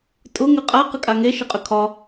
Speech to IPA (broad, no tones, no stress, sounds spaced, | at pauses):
tʼ ʊ ŋ ʏ qʼ a q ə kʼ a ŋ e ʃ ɘ qʼ ʏ kʰ ɒ